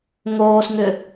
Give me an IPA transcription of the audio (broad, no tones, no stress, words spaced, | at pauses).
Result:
ŋoːsŋʏ